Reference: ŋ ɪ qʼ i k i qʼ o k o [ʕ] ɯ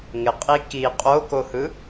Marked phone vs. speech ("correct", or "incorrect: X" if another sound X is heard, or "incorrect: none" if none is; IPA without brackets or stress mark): incorrect: h